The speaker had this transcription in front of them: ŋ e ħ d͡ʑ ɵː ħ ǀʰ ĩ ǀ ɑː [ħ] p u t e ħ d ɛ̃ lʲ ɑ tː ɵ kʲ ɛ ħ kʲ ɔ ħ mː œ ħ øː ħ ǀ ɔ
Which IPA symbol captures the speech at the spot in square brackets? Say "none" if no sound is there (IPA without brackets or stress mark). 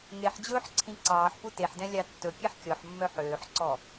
ħ